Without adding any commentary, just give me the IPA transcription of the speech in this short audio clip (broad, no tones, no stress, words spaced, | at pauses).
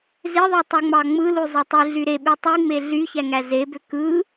zeðˤe tˤuŋ͡mɑŋ͡mɯlu zˤetˤiɮy ɾeɓy tˤiŋ͡me ɮyçæ ŋæzebø kɯ